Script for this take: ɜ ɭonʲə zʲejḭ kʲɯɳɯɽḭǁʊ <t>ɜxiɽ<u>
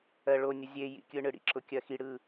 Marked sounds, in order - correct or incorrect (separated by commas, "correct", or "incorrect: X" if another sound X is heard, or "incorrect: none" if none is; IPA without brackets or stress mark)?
incorrect: kʲ, incorrect: ɯ